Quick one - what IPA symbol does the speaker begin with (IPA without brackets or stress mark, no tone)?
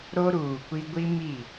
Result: ɾ